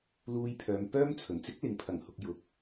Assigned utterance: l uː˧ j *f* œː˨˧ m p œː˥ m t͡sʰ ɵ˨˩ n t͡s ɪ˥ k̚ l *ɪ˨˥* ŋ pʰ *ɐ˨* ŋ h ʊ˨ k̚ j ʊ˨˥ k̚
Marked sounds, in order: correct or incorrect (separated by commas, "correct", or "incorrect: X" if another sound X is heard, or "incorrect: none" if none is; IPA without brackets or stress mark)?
incorrect: pʰ, correct, incorrect: ɐ˨˩